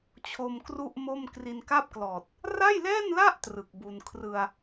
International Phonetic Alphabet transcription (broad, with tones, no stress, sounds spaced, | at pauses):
t͡ɕʰ o˧ m k r u˥˩ ʔ m o˥˩ m k r i˧ n k a˥˩ p̚ k l ɔː˨˩ t̚ | r a˥˩ j l ɛː˥˩ n l a˥˩ ʔ t r ɯ˨˩ k̚ b u˧ n kʰ r ɯ˧ a̯